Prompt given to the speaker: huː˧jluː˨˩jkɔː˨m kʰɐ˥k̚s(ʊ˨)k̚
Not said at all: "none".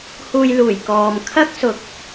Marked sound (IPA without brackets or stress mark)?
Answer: ʊ˨